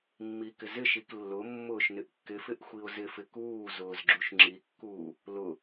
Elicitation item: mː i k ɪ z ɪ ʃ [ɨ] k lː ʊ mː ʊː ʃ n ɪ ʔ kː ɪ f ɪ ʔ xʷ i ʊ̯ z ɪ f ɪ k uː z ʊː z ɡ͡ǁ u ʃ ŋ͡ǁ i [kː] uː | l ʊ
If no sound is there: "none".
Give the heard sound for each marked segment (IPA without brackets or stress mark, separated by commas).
i, kː